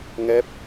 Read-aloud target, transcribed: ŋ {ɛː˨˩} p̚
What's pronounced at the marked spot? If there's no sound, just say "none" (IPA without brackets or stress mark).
ɛː˦˥